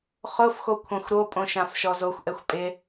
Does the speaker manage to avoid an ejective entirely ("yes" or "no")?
no